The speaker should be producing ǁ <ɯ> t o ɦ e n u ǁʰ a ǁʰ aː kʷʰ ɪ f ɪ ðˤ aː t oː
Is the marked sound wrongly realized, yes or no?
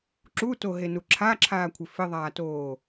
yes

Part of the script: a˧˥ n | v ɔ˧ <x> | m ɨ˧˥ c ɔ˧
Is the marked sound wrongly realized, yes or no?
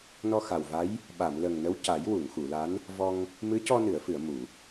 yes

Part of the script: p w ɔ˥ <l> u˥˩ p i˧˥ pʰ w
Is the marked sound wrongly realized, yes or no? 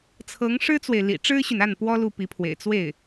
no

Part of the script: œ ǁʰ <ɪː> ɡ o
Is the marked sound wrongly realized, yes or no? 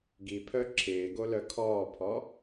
no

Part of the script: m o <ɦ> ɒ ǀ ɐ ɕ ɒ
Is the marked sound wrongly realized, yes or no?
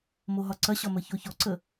no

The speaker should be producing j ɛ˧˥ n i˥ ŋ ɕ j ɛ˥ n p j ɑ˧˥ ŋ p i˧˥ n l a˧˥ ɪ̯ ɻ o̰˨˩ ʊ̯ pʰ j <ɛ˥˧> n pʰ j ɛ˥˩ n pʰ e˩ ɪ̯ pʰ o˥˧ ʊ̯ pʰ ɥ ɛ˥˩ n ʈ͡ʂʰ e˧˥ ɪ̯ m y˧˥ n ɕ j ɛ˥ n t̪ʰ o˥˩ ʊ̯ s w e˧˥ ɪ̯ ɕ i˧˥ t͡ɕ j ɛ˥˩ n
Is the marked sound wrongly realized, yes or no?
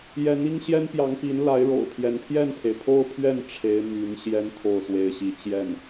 yes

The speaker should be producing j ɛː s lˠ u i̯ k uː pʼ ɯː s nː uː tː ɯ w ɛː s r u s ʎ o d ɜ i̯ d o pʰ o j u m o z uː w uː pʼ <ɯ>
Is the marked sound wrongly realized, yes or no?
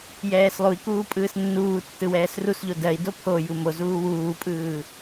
yes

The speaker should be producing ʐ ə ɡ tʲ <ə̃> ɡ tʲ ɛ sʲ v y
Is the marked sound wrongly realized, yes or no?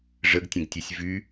no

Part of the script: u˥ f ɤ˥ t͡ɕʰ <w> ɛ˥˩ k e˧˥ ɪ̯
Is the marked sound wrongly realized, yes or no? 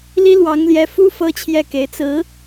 yes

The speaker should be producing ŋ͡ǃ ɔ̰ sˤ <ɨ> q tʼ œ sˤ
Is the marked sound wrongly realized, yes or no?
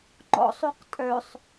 yes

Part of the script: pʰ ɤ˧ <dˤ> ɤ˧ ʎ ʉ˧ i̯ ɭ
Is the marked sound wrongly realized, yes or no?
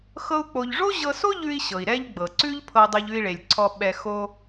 no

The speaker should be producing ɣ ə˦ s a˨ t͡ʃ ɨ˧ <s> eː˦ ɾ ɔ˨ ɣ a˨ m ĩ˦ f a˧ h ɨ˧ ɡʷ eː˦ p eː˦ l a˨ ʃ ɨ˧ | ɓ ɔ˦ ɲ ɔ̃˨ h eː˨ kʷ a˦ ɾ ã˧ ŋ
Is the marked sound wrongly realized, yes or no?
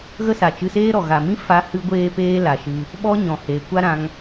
no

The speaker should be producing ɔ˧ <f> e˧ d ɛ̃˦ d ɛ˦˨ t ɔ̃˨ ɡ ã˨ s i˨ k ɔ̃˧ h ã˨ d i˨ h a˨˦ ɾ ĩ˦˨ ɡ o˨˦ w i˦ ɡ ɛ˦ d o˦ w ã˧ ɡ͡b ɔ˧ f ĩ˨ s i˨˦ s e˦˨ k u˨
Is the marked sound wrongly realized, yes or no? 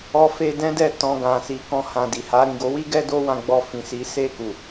no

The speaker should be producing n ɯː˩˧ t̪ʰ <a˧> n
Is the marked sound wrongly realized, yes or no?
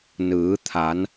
yes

